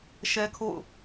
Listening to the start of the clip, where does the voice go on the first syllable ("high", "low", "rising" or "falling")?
high